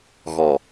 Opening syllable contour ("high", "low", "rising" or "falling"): low